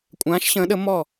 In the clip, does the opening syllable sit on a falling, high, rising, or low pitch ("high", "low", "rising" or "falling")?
rising